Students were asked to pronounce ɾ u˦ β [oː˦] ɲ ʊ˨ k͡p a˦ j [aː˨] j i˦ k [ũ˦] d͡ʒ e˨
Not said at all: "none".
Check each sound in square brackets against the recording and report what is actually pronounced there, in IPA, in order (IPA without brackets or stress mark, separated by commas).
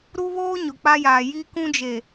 oː˦, aː˨, ũ˦